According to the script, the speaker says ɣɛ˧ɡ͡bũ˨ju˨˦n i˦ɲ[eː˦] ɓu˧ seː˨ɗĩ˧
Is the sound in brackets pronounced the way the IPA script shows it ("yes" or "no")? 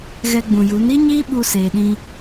no